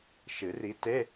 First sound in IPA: ʃ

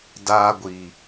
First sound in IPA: d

